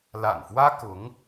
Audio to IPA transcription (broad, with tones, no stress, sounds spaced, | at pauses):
l a̰˨˩ n f w ä˥ k ʊ˧˥ ŋ